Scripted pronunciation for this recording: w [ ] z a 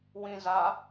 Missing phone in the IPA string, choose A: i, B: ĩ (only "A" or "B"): B